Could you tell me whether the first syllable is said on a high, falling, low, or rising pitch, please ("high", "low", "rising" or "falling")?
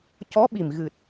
rising